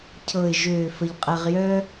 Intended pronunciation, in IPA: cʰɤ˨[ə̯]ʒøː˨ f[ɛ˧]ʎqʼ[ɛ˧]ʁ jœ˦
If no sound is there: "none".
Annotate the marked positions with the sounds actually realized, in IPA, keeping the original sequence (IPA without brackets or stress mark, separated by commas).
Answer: ɪ̯, ə˧, ɛ˧